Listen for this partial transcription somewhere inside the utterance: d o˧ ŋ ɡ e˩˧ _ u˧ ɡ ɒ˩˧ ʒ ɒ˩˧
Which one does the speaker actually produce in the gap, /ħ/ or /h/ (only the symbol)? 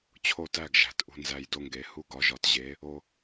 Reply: h